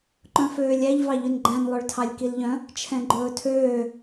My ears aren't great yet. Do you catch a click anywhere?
yes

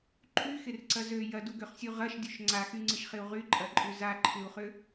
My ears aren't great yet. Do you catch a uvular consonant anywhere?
yes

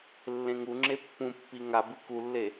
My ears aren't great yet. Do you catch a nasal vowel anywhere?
yes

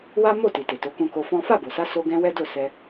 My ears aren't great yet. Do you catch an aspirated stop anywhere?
no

